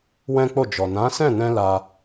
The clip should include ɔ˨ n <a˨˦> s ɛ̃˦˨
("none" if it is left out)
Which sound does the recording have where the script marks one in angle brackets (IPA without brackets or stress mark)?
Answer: ã˨˦